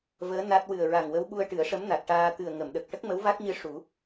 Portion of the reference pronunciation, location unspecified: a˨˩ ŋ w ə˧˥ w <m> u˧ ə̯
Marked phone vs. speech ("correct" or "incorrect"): incorrect